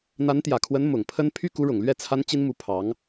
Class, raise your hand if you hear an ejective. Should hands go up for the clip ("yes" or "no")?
no